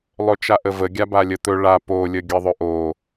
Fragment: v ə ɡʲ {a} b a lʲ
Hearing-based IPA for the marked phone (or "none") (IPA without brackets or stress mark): a